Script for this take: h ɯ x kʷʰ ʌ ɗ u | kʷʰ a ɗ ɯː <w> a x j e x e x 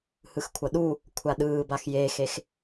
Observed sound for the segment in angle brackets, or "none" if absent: b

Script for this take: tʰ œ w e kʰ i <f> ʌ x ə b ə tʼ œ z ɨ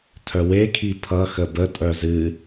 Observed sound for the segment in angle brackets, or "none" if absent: pʰ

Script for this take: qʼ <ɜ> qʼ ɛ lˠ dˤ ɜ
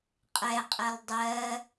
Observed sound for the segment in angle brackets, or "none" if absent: ɛ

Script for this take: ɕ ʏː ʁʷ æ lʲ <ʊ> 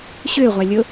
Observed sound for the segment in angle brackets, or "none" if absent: ʊ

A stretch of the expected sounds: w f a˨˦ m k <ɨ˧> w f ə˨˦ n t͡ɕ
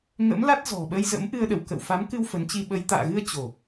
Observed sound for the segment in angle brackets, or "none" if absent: ɨ˧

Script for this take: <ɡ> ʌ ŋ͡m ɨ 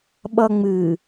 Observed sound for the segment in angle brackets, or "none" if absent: ɓ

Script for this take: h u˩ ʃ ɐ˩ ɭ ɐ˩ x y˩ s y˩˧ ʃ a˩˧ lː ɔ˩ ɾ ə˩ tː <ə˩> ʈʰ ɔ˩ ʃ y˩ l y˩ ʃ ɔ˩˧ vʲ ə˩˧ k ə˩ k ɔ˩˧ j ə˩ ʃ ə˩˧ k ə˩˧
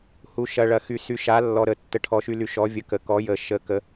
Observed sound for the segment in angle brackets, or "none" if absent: ə˩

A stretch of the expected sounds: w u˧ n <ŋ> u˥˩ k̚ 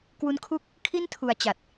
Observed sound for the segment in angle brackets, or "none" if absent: kʰ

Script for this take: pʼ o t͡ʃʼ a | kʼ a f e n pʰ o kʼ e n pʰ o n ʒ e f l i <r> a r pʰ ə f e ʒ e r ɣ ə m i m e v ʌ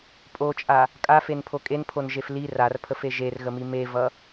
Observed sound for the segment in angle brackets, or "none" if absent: r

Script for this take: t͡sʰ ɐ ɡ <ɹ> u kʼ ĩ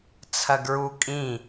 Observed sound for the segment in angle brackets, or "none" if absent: ɹ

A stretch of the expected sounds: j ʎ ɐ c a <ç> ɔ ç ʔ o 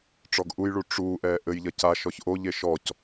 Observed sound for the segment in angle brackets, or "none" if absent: ʃ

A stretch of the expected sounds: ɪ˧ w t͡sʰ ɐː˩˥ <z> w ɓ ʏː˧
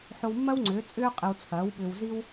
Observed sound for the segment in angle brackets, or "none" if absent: none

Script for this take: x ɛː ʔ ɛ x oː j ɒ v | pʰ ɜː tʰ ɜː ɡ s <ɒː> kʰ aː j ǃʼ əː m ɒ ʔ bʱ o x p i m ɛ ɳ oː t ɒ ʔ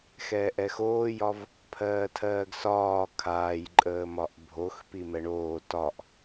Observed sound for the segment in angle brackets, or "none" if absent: ɒː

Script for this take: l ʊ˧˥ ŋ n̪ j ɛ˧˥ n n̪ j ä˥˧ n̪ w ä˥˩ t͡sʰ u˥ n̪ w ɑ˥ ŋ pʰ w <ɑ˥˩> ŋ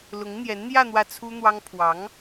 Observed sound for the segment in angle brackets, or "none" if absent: ɑ˧˥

